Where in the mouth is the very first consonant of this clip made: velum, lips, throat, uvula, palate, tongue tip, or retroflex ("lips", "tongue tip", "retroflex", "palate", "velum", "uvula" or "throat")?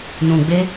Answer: tongue tip